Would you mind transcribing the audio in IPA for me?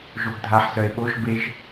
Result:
ʒ o ɡ dʱ a ħ s œ e̯ ɓ o ʒ b e ʒ

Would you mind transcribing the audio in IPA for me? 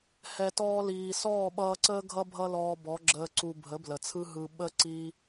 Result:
h ɛ˨ t ɔː˧ l iː˨ s ɔː˦˨ ɓ ʌː˧ ǀ əː˦ ɡʱ ʌ˦ bʱ ʌ˦ l ɔː˧ b ɔ˨˦ ɡ͡ǁ əː˧ ǀ u˧ bʱ ə˨˦ b l ə˨ t͡sʰ ɯ˦ ɦ ɯ˧ ɓ ə˦ ǀ iː˦

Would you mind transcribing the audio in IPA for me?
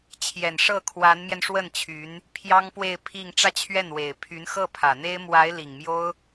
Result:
t͡ɕʰ j ɛ˨˩ n ʂ ɤ˥˩ kʰ w a˧˥ n m j ɛ˧ n ʂ w ə˥˩ n t͡ɕʰ y˧˥ n | pʰ j ɑ˥ ŋ p w e˥˧ ɪ̯ pʰ i˥˧ ŋ ʈ͡ʂ ä˥˧ t͡ɕʰ ɥ ɛ˥˩ n w e˨˩ ɪ̯ pʰ y˧˥ n x ɤ˥˩ pʰ ä˨˩ n̪ e˥ ɪ̯ m w a˧˥ ɪ̯ l i˨˩ ŋ m j o˥ ʊ̯

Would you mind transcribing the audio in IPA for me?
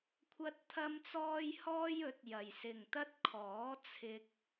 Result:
kʷʰ ɐ˧ t̚ t̪ʰ ɐ˧ m t͡s ɔː˧ j h ɔː˧ j ɵ˨˥ t̚ j ɐ˨ j s ɪ˨ ŋ t̪ ɐ˥ t̚ kʰ ɔː˨˥ t͡sʰ ɪ˧ k̚

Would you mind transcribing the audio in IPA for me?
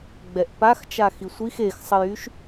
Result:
ɡ͡b ɛ ʔ p a x t͡ʃ a x i sʷ i x e x sˤ ə j y ʃ

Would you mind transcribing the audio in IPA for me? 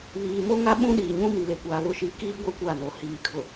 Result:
β iː˨ m o˦ ŋ a˦ ɓ ũ˦ ɗ iː˨ ɲ ũ˦ m i˨ l e˨ kʷ aː˨ β ʊ˨ ʃ i˨˦ k iː˦ ɡʷ ɛ˦ kʷ a˦˨ n o˨ h iː˨ kʰ ʊ˨

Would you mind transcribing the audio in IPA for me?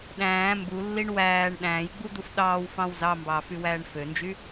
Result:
ɗ æ̃ː m b u lː i ɳ w æː ɳ ɗ æ̃ː j ɡ͡b u d̪ u f ɗ ɑː w f ɑ̃ w z ɑ m b ɑː f y w æː ɳ f ø n d͡ʒ y

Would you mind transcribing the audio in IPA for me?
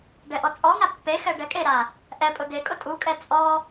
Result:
ɖ ɛ ʔ ɔ t͡sʼ ɔ ŋ a pː e x ɛ ɖ ɛ kʼ e ɾ a | ʔ ɛ pʼ ʊ d e kʼ ʊ tʼ u kʼ ɛ t͡sʼ ɔ

